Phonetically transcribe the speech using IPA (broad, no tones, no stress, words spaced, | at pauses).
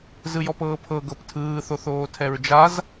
zɯjɔpɤːpʰɤ ɡɤptʰɯː θoθoːtʰɛɹd͡ʒaz